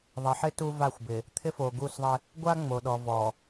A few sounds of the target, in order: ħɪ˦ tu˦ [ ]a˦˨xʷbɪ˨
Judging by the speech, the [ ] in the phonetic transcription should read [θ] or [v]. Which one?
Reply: v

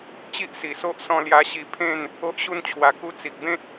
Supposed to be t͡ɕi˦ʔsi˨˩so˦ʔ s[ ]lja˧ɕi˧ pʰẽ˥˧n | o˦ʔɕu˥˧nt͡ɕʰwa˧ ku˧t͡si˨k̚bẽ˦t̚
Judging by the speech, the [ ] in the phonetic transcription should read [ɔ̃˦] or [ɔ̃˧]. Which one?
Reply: ɔ̃˧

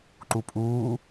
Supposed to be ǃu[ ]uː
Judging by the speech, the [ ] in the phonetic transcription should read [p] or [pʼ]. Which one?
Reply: pʼ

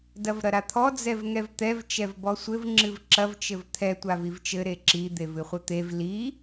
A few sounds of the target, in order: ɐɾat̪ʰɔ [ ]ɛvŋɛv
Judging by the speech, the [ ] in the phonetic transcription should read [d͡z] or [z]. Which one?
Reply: d͡z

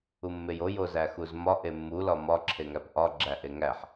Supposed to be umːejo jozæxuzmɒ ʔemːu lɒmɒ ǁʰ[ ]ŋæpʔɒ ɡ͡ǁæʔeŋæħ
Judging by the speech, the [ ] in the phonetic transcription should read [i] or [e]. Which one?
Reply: e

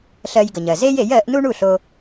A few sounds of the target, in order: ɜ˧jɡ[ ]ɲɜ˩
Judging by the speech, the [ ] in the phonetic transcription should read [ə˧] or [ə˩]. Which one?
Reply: ə˩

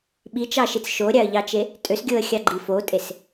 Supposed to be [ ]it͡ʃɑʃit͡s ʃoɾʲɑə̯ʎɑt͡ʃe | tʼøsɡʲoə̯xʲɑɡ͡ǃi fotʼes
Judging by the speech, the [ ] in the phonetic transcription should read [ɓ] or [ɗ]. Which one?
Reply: ɓ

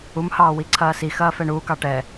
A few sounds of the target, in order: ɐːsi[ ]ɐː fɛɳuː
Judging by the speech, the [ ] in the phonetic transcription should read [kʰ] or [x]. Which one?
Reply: x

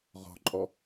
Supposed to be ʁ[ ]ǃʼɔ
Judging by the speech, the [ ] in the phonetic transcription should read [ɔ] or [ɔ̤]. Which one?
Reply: ɔ̤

